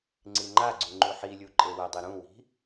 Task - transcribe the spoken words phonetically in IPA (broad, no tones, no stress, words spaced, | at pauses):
ŋ͡ǀiŋ͡ǃaɡ͡ǀu ŋ͡ǃuħilʲu ǃʼewədˤe ɾũwi̤